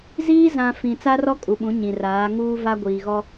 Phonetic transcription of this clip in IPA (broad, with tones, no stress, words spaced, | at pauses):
ziː˦ zã˨ fĩ˨ t͡sa˦rɔ˦kʼu˨ɓũ˨˦ ɲĩ˨raː˨˦ ŋuː˦va˦ɡʷiː˨ɣɔ˦